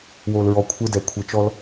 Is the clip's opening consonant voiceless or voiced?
voiced